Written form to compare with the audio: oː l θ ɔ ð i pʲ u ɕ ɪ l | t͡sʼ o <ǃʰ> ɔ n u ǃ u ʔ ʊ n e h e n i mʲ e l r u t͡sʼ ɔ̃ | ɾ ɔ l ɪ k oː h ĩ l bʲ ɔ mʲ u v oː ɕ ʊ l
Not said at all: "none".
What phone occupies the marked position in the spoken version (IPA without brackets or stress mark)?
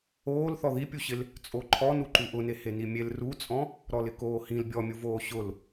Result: ǃʰ